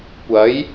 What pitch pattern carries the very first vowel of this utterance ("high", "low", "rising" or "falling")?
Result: rising